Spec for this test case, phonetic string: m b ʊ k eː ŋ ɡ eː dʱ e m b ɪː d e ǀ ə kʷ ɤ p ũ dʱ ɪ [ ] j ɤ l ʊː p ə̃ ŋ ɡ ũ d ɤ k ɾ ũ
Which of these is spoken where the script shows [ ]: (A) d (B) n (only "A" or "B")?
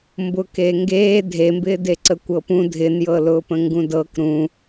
B